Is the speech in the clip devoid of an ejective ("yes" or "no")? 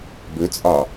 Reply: no